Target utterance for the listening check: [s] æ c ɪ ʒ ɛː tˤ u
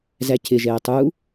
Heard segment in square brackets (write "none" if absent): z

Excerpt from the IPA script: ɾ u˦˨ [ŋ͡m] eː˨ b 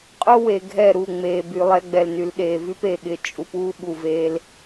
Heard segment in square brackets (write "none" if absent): ŋ͡m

